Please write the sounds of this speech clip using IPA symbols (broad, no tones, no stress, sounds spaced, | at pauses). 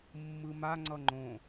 mː ɯ m a ŋ͡ǀ ʌ ŋ͡ǃ õ